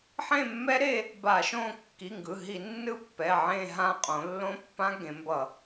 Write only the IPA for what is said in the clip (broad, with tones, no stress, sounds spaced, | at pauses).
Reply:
ħ ẽ˦˨ mː ɛ˦˥ ɾ e˦˨ | b a˧˩˧ ʃ õ˦˨ kː i˩˧˩ ŋ ɡ ɯ˩˧˩ ɦ i˧˩˧ nː ɯ˦˥ pː ɛ˩˧˩ ʕ ẽ˦˨ ɦ ã˦˨ qʼ õ˩˧ lː õ˦˥ pː ã˦˥ ɡ ẽ˩˧ m b ʌ˧˩˧